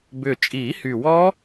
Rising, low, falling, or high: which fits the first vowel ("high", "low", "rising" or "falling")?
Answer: low